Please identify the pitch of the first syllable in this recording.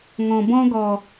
low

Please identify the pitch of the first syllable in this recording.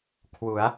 rising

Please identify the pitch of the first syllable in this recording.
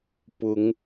rising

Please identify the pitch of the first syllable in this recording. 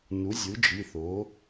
rising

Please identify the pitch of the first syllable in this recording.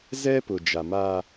high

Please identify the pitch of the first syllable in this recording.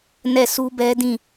falling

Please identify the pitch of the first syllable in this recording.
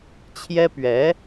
high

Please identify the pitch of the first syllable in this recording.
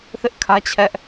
high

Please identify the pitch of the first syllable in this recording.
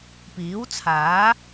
rising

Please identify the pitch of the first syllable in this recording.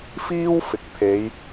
high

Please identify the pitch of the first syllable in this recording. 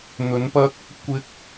rising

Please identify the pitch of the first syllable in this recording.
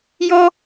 high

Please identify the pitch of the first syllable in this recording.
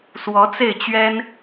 rising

